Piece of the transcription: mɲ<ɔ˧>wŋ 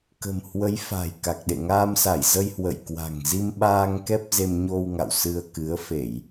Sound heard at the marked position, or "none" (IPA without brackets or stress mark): o˧